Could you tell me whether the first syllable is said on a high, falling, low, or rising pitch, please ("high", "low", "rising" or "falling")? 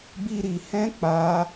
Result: low